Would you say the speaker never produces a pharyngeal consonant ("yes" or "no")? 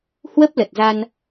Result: yes